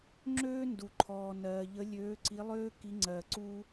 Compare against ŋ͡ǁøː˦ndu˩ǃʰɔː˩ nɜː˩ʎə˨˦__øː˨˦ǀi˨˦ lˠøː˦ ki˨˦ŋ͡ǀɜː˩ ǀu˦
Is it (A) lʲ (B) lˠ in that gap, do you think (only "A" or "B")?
A